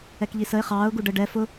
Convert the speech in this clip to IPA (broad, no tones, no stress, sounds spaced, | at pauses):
ɛ k ʎ i s ə ɪ̯ χ ɑː ʊ̯ ɡ u ɖ ə ɖ ɛ f ʊ